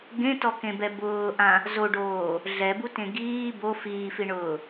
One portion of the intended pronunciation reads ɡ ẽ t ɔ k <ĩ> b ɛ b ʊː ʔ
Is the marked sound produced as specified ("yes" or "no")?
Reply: no